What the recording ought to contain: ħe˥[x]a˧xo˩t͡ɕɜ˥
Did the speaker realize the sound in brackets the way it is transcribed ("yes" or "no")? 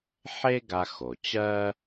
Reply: no